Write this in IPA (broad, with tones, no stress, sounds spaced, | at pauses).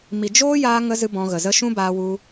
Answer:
m i˨ d͡ʒ oː˦ j aː˧ ŋ ə˧ z ɨ˦ b ɔ̃˧ ɣ ə˨ z ə˦ ʃ ũ˦ b aː˧ w u˧